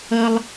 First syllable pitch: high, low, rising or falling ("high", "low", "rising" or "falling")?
high